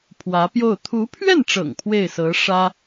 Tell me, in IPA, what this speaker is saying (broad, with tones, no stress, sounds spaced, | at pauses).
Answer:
pʰ w ä˧˥ p j o˥˩ ʊ̯ t̪ʰ u˧˥ pʰ ɥ ɛ˥˩ n ʈ͡ʂ ɤ̰˨˩ ŋ pʰ w e˥˩ ɪ̯ s ɤ˧˥ ʂ ä˥